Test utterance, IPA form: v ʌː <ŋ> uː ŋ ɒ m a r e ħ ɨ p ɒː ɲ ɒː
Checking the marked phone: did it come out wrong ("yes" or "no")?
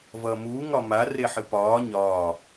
yes